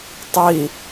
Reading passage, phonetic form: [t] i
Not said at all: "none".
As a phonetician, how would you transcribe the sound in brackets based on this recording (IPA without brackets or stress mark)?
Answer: tˤ